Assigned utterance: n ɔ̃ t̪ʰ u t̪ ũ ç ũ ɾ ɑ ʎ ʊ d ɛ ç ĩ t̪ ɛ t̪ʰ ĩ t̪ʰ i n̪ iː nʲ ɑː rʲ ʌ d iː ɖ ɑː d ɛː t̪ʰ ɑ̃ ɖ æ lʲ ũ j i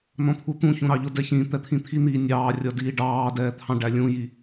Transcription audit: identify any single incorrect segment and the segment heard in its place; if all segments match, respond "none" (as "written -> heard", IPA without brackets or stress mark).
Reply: none